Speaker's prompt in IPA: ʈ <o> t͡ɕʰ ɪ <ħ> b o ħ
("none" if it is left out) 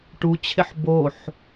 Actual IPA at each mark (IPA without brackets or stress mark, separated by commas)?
u, ħ